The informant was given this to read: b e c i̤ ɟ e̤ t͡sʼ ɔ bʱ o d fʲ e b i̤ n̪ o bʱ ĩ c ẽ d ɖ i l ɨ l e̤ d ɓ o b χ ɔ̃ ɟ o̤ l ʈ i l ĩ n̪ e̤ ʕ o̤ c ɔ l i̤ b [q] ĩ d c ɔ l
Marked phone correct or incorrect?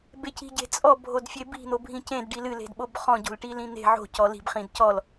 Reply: incorrect: χ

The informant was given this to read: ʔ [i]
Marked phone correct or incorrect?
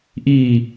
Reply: correct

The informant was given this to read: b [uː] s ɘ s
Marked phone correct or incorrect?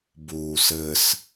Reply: correct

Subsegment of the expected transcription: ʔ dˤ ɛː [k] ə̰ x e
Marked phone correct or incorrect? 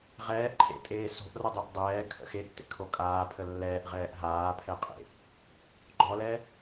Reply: incorrect: kʰ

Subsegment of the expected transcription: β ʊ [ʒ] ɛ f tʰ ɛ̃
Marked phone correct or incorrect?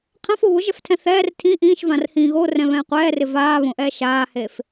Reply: correct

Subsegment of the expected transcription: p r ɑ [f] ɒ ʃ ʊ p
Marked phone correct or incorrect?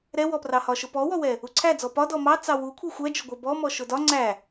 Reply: incorrect: h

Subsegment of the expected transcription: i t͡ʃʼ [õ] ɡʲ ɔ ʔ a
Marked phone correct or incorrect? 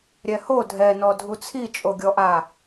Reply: incorrect: o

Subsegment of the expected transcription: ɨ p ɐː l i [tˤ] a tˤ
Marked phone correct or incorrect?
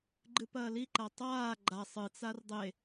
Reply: incorrect: ǃ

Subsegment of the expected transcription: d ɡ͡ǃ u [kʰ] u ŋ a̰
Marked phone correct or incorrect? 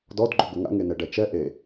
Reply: incorrect: ɡ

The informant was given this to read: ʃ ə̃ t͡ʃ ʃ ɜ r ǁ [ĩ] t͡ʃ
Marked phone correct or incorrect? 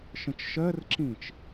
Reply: correct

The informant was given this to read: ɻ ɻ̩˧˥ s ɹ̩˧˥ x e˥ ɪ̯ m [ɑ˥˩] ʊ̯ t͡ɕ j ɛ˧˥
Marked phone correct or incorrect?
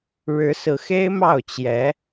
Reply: correct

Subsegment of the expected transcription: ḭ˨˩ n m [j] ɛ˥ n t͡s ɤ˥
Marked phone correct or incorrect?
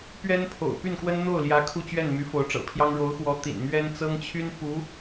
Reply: incorrect: ɥ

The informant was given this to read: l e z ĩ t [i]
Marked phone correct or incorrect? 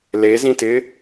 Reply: incorrect: ɪ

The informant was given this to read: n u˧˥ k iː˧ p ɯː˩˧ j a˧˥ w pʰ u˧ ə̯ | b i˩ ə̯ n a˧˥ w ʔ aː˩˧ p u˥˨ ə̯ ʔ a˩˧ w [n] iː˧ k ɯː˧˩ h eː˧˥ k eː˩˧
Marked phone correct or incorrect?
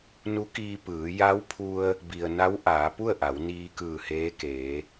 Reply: correct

